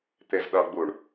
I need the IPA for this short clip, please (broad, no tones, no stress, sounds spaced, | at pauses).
t̪ e z ɗ ʌ ɡ͡b u ɳ